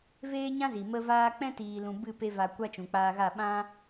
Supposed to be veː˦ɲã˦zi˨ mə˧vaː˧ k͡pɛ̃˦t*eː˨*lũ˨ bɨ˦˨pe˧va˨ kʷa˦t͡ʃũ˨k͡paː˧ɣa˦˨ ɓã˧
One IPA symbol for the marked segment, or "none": iː˨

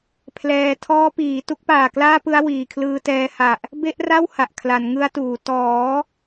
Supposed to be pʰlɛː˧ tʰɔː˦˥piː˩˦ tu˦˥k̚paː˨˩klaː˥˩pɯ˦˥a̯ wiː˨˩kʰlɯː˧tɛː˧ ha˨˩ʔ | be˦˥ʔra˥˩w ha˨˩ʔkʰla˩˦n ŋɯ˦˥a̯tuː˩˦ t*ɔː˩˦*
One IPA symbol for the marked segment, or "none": ɔː˩˦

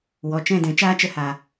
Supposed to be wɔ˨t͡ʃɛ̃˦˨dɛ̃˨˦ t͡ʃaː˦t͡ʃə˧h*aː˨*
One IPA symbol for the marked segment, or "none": aː˨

